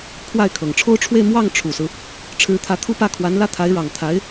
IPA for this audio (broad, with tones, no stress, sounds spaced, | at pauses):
kʰ w a˥˩ ɪ̯ kʰ ɤ˨˩ ŋ ʈ͡ʂʰ o˥ ʊ̯ ʈ͡ʂʰ w e˥˧ ɪ̯ m w ɑ˥˩ ŋ ʈ͡ʂʰ u˨˩ s ɹ̩˦ | ʈ͡ʂʰ ɻ̩˧˥ t̪ʰ ä˧˥ t̪ʰ u˥˧ p ä˥˩ kʰ w a˧˥ n l ä˥˩ t̪ʰ a˧˥ ɪ̯ ɻ ɑ˨˩ ŋ t̪ʰ a˧˥ ɪ̯